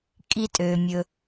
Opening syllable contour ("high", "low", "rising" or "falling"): low